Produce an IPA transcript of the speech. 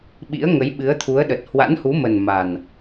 ɓ ḭ˧˥ ə̯ ŋ ə˨˦ j ɓ ɨ˨˦ ə̯ t̪ʰ u˨˦ ə̯ ɗ ə˨˩ t̚ h w a̰˧˥ n h u˨˦ m ə˨˩ n m a˨˩ n

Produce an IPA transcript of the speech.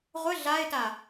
ʁʷ ə ɮ a ɪ̯ t a

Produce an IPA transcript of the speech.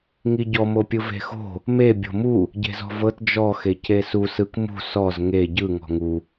ŋ i ɟ ɔ m o pʲ ɯ v e̤ x o̤ | m e bʲ o̤ m u | ɟ e̤ z ɔ̤ v ɤ t d͡ʒ ɔ x e c e s u s ɯ k m ṳ s ɔ z ŋ e ɟ ɯ ŋ ɔ̤ ŋ u

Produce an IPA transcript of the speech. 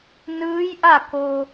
n ɯː˧˥ j ʔ a˥˨ k o˧

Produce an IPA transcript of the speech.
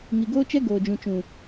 ŋ i˨ ɡ oː˦ t͡ʃ ɛ˦ ɡ oː˨ d͡ʒ ũ˨ t͡ʃ ũ˨

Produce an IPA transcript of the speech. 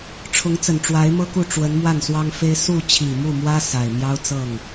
ʈ͡ʂʰ ʊ˧˥ ŋ t͡s ə˨˩ n ʈ͡ʂ w a˧˥ ɪ̯ m ɤ˥ k u˥˩ ʈ͡ʂ w ə˧˥ n m w a˥˩ n s w ɑ˥ ŋ f e˥ ɪ̯ s u˥˩ t͡ɕʰ i˨˩ m u˥˩ m w ä˥ s a˨˩ ɪ̯ m j ɑ˥ ʊ̯ t͡s ɤ˥˩ ŋ

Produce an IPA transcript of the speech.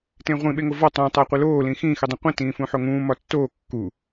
t ẽ ʁʷ ĩ ɓ e ŋ o v ɒ tˤ ũ tˤ æ qʷ e l oː l ĩ x ĩ x i dˤ ĩ qʷ ĩ t ĩː f ũ ħ o ŋ ũː m ɒ tː oː kː u

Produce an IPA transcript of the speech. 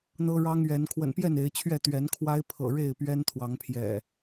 n̪ ɤ˦ ɻ ɑ˦ ŋ ɥ ɛ˨˦ n kʰ w ə̰˨˩ n p j ɛ˥˨ n e˨˦ ɪ̯ t͡ɕʰ ɥ ɛ˥˨ t̪ ɥ ɛ˨˦ n kʰ w a˦ ɪ̯ pʰ ɤ̰˨˩ ɻ e˥˨ ɪ̯ p ɥ ɛ˦ n t̪ʰ w ɑ˨˦ ŋ pʰ j ɛ̰˨˩

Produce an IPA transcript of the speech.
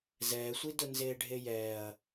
z ɛː sʷ i d ʊ n z eː ɖʱ e j ɛː ɐ̯

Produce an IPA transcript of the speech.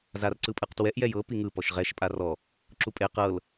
z a r ǀ ɯ pʼ ɯ q t w ɛ ʔ j ɛ j ɤ p i ŋ ɯ p ɔ ʃ ʁ ɛ ʃ pʼ a r ɔ | ǁ u pʼ e q ɤ l

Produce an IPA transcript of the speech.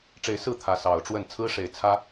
ʈ͡ʂ e˨˦ ɪ̯ s ɹ̩˥˨ t̪ʰ ä˨˦ s ɑ˨˩ ʊ̯ ʈ͡ʂ w ə˥˨ n t͡sʰ ɹ̩˦ ʂ e˨˦ ɪ̯ t͡sʰ ä˦

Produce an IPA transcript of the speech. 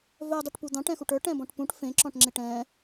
v œ dˤ e ʈ p u d̪ ɑ̃ ʈ ɛ̃ x u ʈ ə˞ ʈ ɛ̃ b ɔ̃ ʈ p ũ ʈ f ẽ ǁ ɔ̃ ʈ ŋ͡ǁ e ʈ ɛ̃

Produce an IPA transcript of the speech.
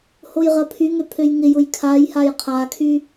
h o j ʁ ɐ pʰ y ŋ ø pʰ ø j ŋ ɪ j ʊ j kʰ a j h a j qʰ a kʰ y

